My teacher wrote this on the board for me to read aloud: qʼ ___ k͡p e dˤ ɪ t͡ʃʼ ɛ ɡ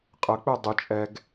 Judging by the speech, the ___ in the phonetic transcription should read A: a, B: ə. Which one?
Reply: B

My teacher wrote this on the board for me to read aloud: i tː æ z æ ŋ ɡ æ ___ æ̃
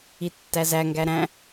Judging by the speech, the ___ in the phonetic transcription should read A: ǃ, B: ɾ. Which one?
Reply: B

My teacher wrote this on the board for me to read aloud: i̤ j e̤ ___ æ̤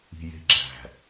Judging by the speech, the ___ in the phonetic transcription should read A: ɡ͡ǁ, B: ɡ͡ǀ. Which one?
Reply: A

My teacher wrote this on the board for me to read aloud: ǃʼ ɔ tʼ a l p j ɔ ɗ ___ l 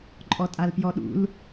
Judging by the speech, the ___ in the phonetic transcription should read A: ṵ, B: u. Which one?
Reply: A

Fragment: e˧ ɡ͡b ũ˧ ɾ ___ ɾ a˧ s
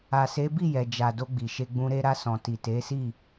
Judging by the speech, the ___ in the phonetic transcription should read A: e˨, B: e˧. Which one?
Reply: B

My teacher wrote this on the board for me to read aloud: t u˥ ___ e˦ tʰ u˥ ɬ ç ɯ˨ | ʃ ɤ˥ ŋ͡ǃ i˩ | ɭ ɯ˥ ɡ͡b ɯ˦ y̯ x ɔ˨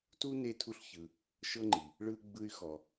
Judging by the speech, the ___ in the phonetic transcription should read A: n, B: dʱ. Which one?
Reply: A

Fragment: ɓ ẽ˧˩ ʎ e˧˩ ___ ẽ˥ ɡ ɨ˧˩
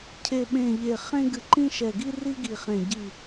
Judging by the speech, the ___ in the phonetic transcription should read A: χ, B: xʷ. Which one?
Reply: A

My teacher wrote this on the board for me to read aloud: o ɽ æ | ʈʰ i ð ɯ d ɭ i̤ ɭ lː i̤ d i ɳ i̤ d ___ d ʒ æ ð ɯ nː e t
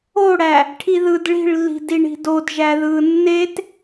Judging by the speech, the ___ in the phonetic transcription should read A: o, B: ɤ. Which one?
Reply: A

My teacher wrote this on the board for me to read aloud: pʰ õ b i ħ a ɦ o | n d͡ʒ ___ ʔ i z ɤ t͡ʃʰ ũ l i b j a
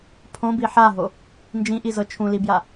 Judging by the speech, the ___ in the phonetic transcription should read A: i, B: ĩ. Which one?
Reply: B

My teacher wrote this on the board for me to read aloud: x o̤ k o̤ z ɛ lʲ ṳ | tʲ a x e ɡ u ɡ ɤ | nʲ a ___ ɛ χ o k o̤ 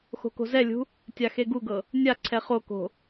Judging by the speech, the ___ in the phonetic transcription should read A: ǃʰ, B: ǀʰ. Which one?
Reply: B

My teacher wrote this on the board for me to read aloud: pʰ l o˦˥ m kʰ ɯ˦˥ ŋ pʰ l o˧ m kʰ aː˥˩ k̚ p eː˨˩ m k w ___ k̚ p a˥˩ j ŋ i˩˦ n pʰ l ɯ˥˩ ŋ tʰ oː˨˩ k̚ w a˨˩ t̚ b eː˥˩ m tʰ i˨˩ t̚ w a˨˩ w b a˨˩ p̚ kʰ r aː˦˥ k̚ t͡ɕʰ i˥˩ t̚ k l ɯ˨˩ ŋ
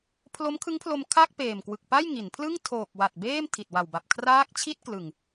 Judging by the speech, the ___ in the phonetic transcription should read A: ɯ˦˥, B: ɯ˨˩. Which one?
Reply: B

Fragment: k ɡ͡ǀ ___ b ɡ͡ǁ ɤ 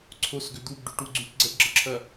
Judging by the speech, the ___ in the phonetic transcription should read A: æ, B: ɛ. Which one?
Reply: B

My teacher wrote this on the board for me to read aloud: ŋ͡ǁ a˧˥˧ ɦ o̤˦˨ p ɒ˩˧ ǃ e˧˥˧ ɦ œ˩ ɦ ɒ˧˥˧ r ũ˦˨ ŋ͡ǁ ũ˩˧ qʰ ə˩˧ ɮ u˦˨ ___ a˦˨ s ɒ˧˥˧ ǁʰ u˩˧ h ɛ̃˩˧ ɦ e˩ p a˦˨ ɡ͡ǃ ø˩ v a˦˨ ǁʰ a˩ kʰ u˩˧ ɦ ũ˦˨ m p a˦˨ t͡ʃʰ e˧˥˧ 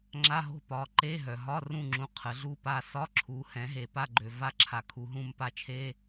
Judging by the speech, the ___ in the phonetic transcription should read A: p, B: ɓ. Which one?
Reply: A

